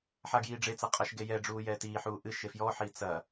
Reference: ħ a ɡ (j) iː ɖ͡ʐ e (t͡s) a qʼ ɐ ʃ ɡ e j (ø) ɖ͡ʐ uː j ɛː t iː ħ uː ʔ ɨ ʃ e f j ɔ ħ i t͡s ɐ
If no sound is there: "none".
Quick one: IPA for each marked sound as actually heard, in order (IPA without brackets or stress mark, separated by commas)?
j, t͡s, ɛ